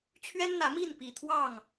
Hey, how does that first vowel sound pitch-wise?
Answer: high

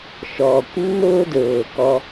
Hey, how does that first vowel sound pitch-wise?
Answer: low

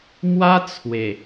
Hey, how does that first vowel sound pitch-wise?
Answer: high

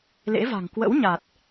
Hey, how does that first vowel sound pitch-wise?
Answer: rising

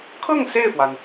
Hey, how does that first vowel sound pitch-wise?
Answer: falling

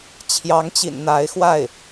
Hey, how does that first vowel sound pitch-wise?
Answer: rising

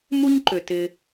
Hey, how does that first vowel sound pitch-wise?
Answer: high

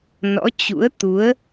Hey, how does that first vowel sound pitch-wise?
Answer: rising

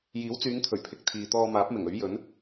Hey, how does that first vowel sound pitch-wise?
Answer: rising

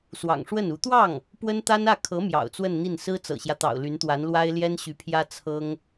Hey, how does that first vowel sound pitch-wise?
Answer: low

